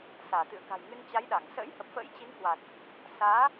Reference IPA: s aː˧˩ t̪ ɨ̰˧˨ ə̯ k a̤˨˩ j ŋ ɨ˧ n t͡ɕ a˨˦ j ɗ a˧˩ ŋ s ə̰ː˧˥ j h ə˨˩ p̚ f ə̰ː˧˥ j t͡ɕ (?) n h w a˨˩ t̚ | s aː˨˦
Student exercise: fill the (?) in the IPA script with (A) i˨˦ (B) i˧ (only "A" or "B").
A